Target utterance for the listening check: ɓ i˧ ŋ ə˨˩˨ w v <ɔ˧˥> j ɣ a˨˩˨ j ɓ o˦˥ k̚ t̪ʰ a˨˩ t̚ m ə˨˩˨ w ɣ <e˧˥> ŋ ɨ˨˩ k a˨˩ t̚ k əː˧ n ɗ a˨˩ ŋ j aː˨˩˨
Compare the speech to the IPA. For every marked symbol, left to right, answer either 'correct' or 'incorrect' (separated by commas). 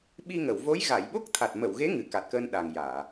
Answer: incorrect, correct